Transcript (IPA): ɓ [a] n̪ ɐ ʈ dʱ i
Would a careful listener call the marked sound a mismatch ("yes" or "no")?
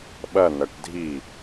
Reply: yes